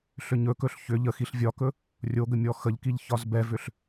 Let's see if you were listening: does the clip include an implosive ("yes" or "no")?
no